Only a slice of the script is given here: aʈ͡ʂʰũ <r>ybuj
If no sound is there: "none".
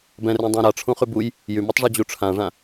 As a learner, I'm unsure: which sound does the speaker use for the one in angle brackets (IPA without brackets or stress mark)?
χ